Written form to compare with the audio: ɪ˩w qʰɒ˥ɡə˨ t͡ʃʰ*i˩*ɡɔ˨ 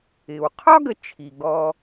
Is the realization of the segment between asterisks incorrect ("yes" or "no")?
no